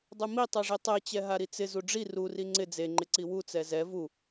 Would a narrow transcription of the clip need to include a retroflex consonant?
yes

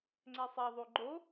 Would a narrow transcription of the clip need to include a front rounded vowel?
yes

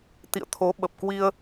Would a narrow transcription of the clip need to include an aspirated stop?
yes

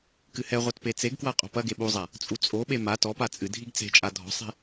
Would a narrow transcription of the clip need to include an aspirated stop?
no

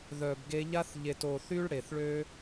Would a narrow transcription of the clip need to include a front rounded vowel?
yes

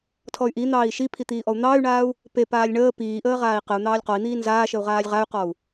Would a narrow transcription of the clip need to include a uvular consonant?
yes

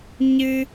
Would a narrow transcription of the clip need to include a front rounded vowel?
no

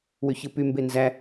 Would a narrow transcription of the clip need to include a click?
no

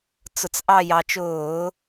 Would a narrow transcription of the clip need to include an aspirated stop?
no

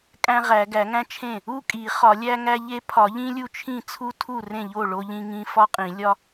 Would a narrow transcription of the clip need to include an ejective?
yes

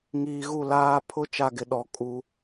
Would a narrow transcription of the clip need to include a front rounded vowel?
no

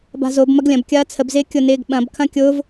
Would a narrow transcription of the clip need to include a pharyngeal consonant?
no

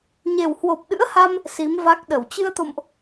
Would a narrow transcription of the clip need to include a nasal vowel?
no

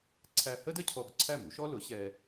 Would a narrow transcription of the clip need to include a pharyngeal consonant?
no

